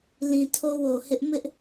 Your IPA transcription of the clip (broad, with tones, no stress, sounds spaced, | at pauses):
l ĩ˨ tʰ o˦ w o˨ h ɪ˦ ʔ m ɪ˦ ʔ